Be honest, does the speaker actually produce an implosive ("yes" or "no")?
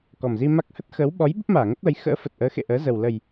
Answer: yes